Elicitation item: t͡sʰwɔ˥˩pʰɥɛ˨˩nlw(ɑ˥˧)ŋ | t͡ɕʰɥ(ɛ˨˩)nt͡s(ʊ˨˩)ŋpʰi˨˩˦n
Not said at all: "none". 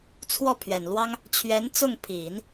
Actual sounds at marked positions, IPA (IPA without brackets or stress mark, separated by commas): ɑ˥, ɛ˧˥, ʊ˥˩